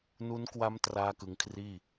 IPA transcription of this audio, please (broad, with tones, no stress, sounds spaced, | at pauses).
n u˦˥ n k w a˦˥ m t r aː˥˩ k ɯ˧ ŋ kʰ r iː˥˩